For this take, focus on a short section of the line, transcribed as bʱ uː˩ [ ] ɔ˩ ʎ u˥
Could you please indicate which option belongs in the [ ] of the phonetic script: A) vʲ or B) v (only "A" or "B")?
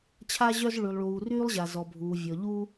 A